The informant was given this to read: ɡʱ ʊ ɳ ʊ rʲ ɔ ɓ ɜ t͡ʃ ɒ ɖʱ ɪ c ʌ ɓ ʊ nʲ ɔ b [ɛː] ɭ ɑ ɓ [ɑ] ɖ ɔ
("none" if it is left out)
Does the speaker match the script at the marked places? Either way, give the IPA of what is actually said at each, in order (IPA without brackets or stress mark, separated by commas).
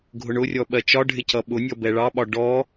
ɛ, ɒ